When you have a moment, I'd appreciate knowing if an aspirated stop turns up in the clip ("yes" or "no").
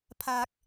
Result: yes